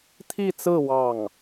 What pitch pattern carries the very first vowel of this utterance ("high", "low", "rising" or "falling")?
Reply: falling